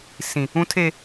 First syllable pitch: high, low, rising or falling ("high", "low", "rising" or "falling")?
low